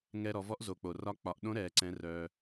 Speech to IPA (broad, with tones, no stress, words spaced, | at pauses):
ŋɛ˧ɾɔ˩˧vɔ˧˥ʔ zo˩k͡po˩ rɒ˧k͡pɒ˩˧ʔɗõ˧˥ ɾɛ˩ǀɛ̃˩˧ rœ˩